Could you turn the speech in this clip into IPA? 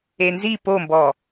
enzi pombɔ

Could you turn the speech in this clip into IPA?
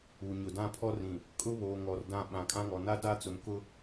u˨ ɲʊ˨dã˦pʰɔ˦ rĩ˨ | kʼʊ˦βoː˨ŋɔ˨r dã˦˨ɓã˨ kʼã˦ŋɔ˨ na˦da˦t͡sʊ˨m kʊ˦

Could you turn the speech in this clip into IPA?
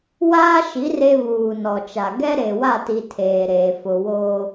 waː˦ʃi˨˦ re˦βuː˨nɔ˨t͡ʃa˨ ɡɛ˦ɾe˨wa˦˨ti˨ tʰeː˨ɾeː˨ fʊ˨ wo˦

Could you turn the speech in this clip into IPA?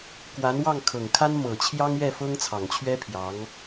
kwa˧˥nwɑ˥˩ŋkʰɤ˨˩ŋkʰa˥n mɤ˨˩t͡ɕʰjɑ˥ŋɥɛ˥˩ fɤ˥ŋt͡sʰɑ˨˩ŋt͡ɕʰɥɛ˥ pʰjɑ˧˥ŋ

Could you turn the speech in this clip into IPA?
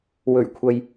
wɵ˨˩ɥkʷʰɐ˨j

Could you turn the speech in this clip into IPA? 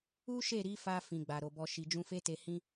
u˦ʃe˦˨ɾi˨˦fa˧ fĩ˨ɡ͡ba˨ɾo˨bɔ˧ ʃi˨d͡ʒũ˧fe˦te˧ hĩ˦

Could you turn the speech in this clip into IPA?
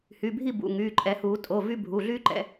hy˩˧˩bʱi˥˨ bṵ˩˧˩ ŋyː˩˧˩ǃʼɛ˨˩˦huː˨˩˦ tʼo˩˧˩ vy˥ bʱu˩˧˩ɮyː˥ǃɛ̰˨˦

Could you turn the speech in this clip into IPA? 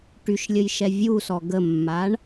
ʈyʃlʲəjʃɛ vʲusɔ ɡəmːaɳ

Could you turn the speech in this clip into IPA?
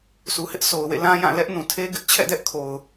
sʰu˨hɪ˦ʔso˨ʊ̯ wḛ˦˨ lã˦jã˦˨ lɛ˦ʔnũ˨tʰe˦ ɡɪ˦ʔt͡ɕʰɛ̰˦˨dɛ˦ʔkʰo˨ʊ̯

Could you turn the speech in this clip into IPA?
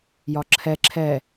jɒǁʰɛ ǁʰɛ

